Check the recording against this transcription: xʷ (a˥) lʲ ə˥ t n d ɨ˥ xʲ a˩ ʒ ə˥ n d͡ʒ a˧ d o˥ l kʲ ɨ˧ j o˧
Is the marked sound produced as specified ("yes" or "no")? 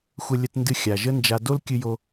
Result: no